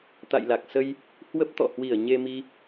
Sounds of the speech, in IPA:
t̪ a̰˧˨ j l a˨˩ k̚ s ə˧ j | h w ə˦˥ p̚ t̪ ɔ̰˧˨ h w i˧˩ ə̯ ɲ e˧ m i˧

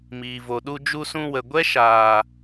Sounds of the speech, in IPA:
m iː˨ v o˨ ɗ u˧ d͡ʒ u˧ s ũ˧ w ə˨ ɡʷ ɛ˦ ʃ aː˨

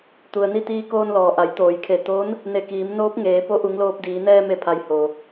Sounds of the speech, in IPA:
t̪ u˩ ə̯ n i˥˨ t̪ iː˧ k oː˧ n l ɔː˩ ʔ a˩˧ j t̪ oː˩˧ j kʰ e˧˩ t̪ o˧˥ n | n e˧˩ k iː˩˧ m n oː˧˥ p̚ ŋ eː˩˧ p o˧˥ ʔ u˩˧ ŋ l oː˧ p̚ d iː˩˧ n ɛː˧ m e˧˩ pʰ a˩ j h o˩

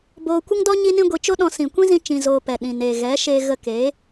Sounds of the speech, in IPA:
b oː˧ kʷ ə˦ ŋ d ɔ˦ ɲ i˦ n ĩ˦ ɡʷ i˧ t͡ʃ o˦ ɗ ɔ̃˦ s ĩ˨ kʷ ĩ˦ z ĩ˧ t͡ʃ ĩ˧ z oː˧ p ɛ˨ ɗ ĩ˨ n eː˨ ɣ ɛ˨˦ ʃ eː˧ ɣ ə˧ k eː˨˦

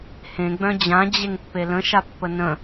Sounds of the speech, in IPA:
h ẽ ɡ͡b œ̃ d͡ʑ ã d͡ʑ e ŋ pː e l ə̃ ʃ a pː ə n ə̃

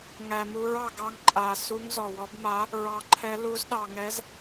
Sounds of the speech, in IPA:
ŋ æ˧ m u˧˥ ɹ ɑ˧ ɡ ɑ˧˥ ŋ ǃʼ a˧ s u˧˥ ŋ z ɔ˧ w ɔ˧˥ b m a˧˥ | ɹ ɑ˧ ǃʰ ɛ˧˥ l u˧˥ z ɗ ɑ˧ ŋ ɛ˧˥ z

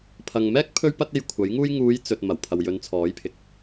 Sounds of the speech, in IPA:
pʰ ɐ˨ ŋ m ɛː˥ k̚ pʰ ɵ˥ ɥ p ɐ˥ t̚ e˧ j kʷʰ ɐ˨˥ j ŋ uː˥ j ŋ uː˨˧ j t͡s ɵ˨ t̚ m ɐ˨˩ w pʰ ɐ˨ w j ɵ˨˧ n t͡sʰ ɔː˨˥ j pʰ ɪ˨ k̚

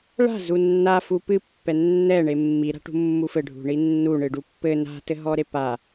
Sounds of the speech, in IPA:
ɭ a̤ z u nː a f u p ɨ pː ɛ nː ɛ ɳ e mː i ɾ a̤ ʈ ṳ mː u f ɘ ɖʱ ṳ ɳ i nː u ɳ ɨ ɖ u pː ɘ n a̤ t ɘ ɦ ɔ ɾ e p a

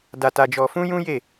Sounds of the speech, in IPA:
d a˧ t a˧ d͡ʒ ɔ˧ f ũ˦ j ũ˦ j e˦˨

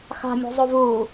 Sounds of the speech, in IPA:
x a̤ mʲ o̤ zˤ o v u

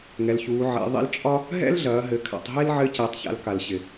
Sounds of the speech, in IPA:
ŋ ɛ˩˧ l ç uː˩˧ ʕ ḛ˩˧ ðˤ ḭ˧˥ l t͡ʃʼ ɒ˥ | ɦ ɛ̰˥ l ɮ ɐː˩˧ ɦ ɘ˩˧ kʰ a̰˩˧ tˤ ɦ e˥ l ʕ ɘ˧˥ c e˩˧ tˤ ç a̰˩˧ l k a˩ l ɕ ɪ˩

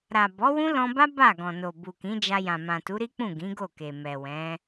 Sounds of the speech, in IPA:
ɾ a˨ b ɔ˨˦ w ũ˦ l ɔ̃˧ b a˦ b a˦˨ ɡ ɔ̃˨ n o˨ b u˨ k ĩ˨˦ d͡ʒ a˧ j ã˨ m ã˨ t u˨˦ ɾ i˦ k͡p ũ˦˨ ɡ ĩ˨˦ ɡ o˦˨ k e˨ m ɛ˨ w ɛ̃˨˦

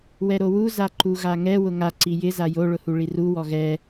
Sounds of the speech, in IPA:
w ɛ ɾ o w u z a ǃ u ɣ a ŋ ɛ w ʊ ŋ a ǀ i j ɪ z a j o ɭ ʊ h u ɭ i r u w ɔ ɣ ɛ

